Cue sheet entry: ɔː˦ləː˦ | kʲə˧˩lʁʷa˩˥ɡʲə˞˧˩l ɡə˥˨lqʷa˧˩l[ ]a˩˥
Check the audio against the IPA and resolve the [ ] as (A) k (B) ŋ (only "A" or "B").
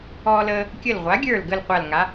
B